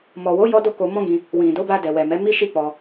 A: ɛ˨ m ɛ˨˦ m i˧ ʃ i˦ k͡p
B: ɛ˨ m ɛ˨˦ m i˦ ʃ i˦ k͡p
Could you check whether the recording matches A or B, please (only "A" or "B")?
B